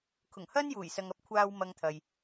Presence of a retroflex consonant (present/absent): absent